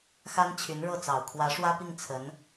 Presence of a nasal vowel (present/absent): absent